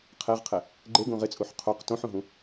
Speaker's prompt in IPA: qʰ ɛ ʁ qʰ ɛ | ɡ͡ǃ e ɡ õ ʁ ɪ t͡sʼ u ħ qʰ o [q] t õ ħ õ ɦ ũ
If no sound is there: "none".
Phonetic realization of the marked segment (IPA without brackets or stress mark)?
q